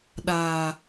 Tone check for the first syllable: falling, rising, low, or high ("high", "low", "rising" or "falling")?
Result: low